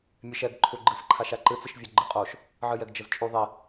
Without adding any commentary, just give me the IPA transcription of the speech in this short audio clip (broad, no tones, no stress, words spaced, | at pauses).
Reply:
mʲɛʃɛɡ ǃʰuɡ͡ǃɨf ǃʰaʃaǃɨ t͡sɨʃvʲoɡ͡ǃɨqʼoʃ | ʕɨjɛɡd͡ʒəzt͡ʃʼu ðˤi